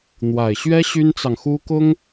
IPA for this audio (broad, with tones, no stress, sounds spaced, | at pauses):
n̪ w a˨˩ ɪ̯ ɕ ɥ ɛ˥ ɕ y˥ n t͡s ɑ˨ ŋ x u˥ k ʊ˥ ŋ